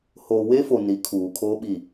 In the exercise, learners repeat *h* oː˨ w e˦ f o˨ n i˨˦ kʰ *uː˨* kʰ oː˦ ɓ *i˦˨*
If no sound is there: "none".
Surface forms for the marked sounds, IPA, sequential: h, uː˨, i˦˨

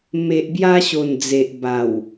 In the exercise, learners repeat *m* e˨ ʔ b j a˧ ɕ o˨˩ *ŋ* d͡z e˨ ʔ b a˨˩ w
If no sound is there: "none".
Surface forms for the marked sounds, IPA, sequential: m, n

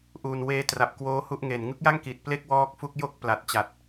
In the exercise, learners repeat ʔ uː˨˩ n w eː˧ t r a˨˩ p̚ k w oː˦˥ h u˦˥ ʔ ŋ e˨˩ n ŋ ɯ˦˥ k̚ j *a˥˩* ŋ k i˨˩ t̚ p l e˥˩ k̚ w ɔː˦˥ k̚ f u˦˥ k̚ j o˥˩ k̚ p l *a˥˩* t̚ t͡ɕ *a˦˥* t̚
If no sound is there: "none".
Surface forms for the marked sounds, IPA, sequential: a˥˩, a˨˩, a˨˩

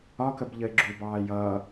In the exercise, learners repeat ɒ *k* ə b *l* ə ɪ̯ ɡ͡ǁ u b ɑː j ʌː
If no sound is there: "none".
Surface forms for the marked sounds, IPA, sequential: k, ʎ

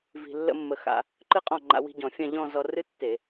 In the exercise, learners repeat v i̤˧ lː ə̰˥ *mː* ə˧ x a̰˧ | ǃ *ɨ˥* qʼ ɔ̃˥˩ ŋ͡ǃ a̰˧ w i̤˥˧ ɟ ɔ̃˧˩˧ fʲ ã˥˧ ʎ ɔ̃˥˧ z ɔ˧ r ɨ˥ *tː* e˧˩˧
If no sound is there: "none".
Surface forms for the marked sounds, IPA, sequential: mː, ɨ˥, tː

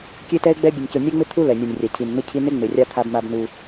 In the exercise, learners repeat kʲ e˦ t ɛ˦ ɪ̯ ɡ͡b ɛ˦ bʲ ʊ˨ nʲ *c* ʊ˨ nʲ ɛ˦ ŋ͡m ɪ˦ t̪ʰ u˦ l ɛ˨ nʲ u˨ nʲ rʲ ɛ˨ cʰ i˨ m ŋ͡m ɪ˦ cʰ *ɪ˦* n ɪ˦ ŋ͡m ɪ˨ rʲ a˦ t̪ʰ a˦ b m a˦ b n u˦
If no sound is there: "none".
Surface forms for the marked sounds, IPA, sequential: c, i˦

